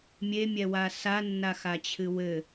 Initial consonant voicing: voiced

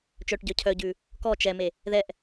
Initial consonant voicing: voiceless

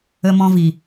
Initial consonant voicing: voiced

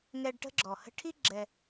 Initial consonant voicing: voiced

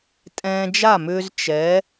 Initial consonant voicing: voiceless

